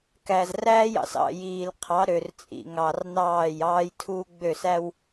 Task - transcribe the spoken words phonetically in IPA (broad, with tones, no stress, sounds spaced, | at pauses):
k æ˨ z r æː˦ j ɑ̰˨ s ɑ̰˦˨ j iː˨ l qʰ ɑ˨˦ ɾ ø˨ r t͡sʼ ḭ˨ ŋ ɑ˨ r n ɑː˦˨ j ɑː˦ j tʰ uː˦ ɡ͡b ø˦˨ s æ˦ w